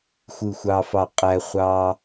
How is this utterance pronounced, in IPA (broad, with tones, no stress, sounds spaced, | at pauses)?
xʷ ɯ˧˩ xʷ ɑ˧ f ɑ˧˩ qʼ æ˧ χʷ ɑ˧